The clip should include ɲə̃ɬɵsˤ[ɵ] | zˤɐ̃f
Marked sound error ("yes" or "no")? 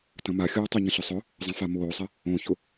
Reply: yes